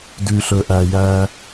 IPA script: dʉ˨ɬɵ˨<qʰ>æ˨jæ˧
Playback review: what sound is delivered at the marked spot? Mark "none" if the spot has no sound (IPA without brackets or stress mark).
ʔ